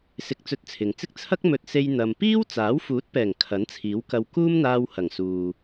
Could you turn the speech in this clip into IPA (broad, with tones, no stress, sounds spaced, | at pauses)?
s ɪ˧ k̚ t͡s ɵ˧ t̚ t͡sʰ ɪ˨ ŋ t͡s ɪ˥ k̚ t͡sʰ ɐ˥ k̚ m ɵ˧ t̚ s e˧ j n̪ ɐ˨ m p iː˥ w t͡s aː˨˥ w f uː˨˥ t̚ p ɛː˨˩ ŋ kʰ ɐ˨˥ n t͡sʰ iː˨˥ w k ɐ˧ w k uː˥ m n̪ aː˧ w h ɐ˨˩ ŋ s uː˨